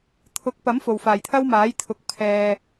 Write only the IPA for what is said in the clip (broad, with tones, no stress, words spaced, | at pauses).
t̪ʰʊ˨˥k̚pɐ˨˥m fo˨˩wfaː˨˩jt̪ʰɐ˥wmaː˨˥j t̪ʰʊ˨k̚ pʰɛː˨